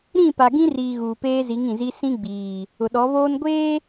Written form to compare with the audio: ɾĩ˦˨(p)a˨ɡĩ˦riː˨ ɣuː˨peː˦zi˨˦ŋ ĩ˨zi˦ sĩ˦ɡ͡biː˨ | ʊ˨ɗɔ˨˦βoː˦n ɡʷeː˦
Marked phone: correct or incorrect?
correct